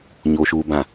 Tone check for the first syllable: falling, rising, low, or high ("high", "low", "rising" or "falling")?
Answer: low